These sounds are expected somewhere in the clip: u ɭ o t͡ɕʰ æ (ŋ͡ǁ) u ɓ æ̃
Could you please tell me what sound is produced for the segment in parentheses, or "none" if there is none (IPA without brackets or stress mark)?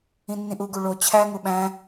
ŋ